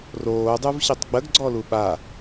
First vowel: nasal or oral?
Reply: oral